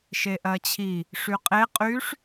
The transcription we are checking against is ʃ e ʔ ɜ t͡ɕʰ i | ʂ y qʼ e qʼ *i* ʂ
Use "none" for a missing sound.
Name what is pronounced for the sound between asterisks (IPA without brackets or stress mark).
y